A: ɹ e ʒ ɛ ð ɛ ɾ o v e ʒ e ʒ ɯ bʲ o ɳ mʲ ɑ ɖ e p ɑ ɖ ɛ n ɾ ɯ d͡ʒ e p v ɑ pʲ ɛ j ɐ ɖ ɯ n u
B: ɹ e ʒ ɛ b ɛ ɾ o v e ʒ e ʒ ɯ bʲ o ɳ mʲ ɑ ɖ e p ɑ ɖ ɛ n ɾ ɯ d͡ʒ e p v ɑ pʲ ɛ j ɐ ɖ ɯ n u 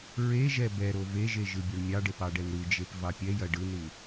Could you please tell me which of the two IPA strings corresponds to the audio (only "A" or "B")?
B